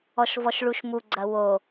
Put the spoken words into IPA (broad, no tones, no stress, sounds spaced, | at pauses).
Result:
ɔ ʃ v ɔ ʃ ɭ u ʃ m u ɡ͡ǀ ɐ w o